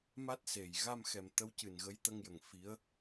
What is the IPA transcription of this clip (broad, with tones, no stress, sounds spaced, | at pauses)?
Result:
m a˦˥ t̚ s e˨˩ j ɣ a˧ m x ɛ˨˩ m t̪ ə˧˥ w c ɨ˨˩ n ɣ ə˧˥ j t̪ ə˧ ŋ j ə˨˩ ŋ f i˧˥ ə̯